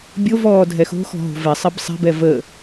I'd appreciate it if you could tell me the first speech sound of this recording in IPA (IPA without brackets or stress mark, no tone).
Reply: bʲ